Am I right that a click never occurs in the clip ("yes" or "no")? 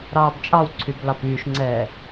no